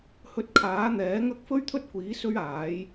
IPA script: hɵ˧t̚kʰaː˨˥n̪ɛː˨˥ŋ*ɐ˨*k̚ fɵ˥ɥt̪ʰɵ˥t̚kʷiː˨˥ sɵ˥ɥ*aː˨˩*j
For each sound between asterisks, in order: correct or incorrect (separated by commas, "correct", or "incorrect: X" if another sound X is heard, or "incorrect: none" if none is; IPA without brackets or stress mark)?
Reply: incorrect: ɐ˥, incorrect: aː˨˥